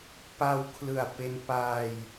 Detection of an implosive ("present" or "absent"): absent